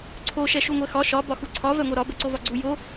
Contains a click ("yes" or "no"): yes